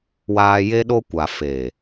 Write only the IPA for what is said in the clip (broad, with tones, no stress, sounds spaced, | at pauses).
w aː˦ j e˦ ɗ o˦ kʷ a˨ f e˨